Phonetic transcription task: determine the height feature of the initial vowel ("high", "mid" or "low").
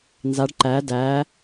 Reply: low